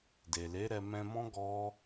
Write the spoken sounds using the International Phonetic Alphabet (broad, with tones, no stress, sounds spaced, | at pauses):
d e˨ l e˨˦ ɾ ɛ˧ m ɛ̃˧ m ɔ̃˦ ɡ ɔ˦